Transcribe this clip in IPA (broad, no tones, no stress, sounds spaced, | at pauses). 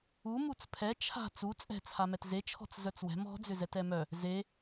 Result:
u m u t͡s pʰ ɛ t͡ʃʰ a̤ t͡s u t͡sʼ ɛ̤ t͡sʰ a m ɛ t z e t͡ʃʰ ɔ̤ t͡s z œ t͡s w ɛ̤ m ɔ̤ d͡z ʏ z ɛ t ɛ m œ | z e